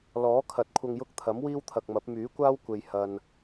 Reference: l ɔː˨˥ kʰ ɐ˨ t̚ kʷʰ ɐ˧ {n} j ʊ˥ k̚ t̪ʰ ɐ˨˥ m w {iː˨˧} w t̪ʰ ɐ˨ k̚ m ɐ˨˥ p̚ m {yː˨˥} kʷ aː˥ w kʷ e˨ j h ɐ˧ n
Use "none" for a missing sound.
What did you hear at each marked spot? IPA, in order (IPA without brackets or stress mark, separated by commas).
ŋ, iː˥, yː˨˥